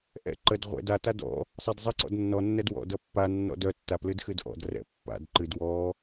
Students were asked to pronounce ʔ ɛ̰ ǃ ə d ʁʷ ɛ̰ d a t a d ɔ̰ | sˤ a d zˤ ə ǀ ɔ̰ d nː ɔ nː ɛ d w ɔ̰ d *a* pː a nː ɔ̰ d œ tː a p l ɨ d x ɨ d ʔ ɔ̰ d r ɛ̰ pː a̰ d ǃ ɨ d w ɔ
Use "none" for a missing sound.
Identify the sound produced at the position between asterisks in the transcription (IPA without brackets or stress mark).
ʌ